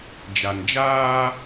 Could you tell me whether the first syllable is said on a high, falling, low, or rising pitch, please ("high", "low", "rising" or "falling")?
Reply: low